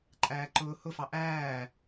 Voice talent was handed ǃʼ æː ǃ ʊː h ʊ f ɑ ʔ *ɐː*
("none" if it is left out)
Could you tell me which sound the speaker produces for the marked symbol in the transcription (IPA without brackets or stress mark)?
æː